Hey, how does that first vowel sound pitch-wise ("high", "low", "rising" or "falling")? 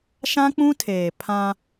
high